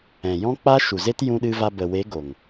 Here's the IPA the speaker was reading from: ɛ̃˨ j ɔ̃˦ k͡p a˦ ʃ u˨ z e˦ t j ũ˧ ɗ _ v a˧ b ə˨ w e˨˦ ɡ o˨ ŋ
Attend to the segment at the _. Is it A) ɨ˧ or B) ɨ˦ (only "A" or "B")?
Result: A